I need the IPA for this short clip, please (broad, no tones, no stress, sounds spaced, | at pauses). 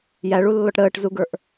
j æ ɭ u lː ɔ ʈ ɾ əː ʈ z u ɡ ə˞ ʔ